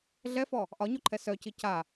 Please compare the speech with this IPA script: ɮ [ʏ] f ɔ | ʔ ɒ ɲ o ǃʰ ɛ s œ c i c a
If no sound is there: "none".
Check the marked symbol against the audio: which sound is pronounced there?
ɛ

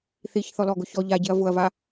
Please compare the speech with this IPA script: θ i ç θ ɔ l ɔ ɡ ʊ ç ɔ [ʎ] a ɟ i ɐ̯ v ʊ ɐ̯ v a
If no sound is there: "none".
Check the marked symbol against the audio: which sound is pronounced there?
ʎ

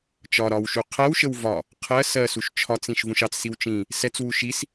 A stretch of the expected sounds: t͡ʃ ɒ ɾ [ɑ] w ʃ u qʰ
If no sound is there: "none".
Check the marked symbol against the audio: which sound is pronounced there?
ɒ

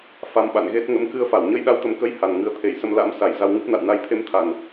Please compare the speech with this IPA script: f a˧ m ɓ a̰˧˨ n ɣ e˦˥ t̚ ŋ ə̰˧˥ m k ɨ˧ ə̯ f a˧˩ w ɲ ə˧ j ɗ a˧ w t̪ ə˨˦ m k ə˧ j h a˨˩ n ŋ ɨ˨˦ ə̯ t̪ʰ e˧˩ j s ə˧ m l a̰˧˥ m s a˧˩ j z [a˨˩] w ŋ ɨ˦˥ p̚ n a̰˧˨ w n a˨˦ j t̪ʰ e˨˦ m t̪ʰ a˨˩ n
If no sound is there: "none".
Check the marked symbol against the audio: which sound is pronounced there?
a˧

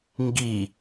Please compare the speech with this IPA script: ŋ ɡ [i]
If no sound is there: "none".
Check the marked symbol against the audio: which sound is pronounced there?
i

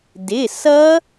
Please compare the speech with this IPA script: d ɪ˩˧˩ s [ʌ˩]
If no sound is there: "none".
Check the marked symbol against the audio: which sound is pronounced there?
ʌ˦˥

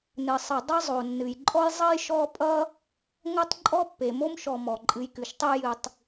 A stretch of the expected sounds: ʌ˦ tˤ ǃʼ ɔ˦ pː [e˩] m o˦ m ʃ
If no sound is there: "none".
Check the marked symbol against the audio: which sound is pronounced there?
e˩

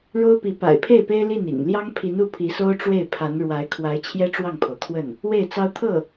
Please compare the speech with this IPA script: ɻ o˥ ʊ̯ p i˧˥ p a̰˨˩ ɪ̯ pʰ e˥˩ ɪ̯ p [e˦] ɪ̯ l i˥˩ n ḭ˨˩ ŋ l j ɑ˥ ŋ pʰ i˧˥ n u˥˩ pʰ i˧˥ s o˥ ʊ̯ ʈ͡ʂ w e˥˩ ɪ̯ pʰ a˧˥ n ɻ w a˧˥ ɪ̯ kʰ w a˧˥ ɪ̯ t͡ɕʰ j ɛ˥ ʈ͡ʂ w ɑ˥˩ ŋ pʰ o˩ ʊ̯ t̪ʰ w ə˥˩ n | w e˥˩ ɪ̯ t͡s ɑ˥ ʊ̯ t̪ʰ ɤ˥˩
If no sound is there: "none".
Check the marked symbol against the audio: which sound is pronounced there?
e˥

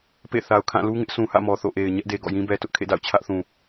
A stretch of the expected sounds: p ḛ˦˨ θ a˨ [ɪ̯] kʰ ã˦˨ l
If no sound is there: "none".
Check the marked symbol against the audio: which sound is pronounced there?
ʊ̯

